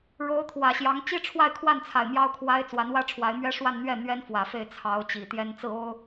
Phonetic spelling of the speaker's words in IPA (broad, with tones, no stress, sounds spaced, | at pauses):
ɻ o˧˥ ʊ̯ t̪ʰ w ä˨˩ ɕ j ɑ˧˥ ŋ t͡ɕ i˥ ʈ͡ʂʰ w a˥˧ ɪ̯ kʰ w a˥˩ n t͡sʰ a˨˩ ɪ̯ m j ɑ˥ ʊ̯ kʰ w a˥ ɪ̯ t͡s w a˧˥ n w ä˥ ʈ͡ʂʰ w a˧˥ ɪ̯ m ɥ ɛ˥ ʂ w a˥˧ n n̪ ɥ ɛ˥˩ n̪ ɥ ɛ˥ n f w ä˨˩ f e˥˩ ɪ̯ t͡sʰ ɑ˧˥ ʊ̯ t͡ɕ i˨˩ t̪ j ɛ˥ n t͡s ɹ̩˥˩ o˥ ʊ̯